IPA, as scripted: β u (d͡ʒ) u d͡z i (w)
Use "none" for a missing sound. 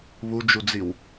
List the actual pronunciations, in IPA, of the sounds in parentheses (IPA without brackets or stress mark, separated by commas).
d͡ʒ, w